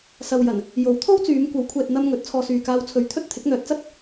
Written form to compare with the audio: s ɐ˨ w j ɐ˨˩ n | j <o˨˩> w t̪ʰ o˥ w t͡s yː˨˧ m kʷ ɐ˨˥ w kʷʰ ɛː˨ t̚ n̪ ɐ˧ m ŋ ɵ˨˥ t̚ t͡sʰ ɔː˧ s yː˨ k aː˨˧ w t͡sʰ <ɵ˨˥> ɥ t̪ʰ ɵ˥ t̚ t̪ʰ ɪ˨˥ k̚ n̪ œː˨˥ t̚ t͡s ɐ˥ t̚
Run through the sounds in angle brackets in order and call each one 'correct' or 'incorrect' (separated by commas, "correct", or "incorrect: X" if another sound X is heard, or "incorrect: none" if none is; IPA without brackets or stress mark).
incorrect: o˨˥, correct